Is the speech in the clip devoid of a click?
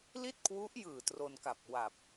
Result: yes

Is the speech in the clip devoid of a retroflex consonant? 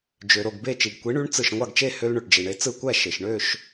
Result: no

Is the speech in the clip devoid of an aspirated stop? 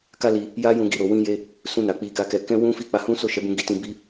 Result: yes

